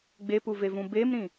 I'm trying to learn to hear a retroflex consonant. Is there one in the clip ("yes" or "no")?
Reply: no